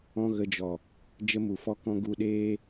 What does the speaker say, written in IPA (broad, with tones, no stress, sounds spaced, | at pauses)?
ɔ̃˦ ɣ ə˧ d͡ʒ ɔ˨ | d͡ʒ ə˦ m u˨ f ɔ˦ k ɔ̃˦ ɡ u˧ ɗ eː˦